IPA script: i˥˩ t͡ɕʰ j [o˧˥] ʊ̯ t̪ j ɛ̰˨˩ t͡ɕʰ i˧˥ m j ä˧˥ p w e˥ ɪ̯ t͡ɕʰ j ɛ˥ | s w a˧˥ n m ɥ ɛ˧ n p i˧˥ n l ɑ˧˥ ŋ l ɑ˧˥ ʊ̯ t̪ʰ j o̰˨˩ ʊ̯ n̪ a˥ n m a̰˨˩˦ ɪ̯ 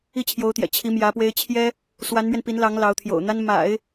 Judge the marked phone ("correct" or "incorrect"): correct